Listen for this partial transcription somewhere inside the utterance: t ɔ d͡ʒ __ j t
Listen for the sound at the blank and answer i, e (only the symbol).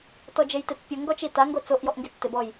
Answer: e